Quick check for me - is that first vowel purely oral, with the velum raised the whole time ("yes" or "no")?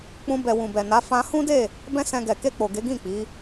no